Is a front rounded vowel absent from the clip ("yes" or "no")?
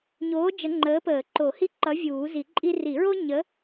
yes